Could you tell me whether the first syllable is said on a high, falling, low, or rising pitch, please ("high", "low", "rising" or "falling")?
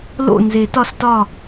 falling